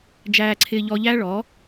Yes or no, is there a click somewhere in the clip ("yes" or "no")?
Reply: yes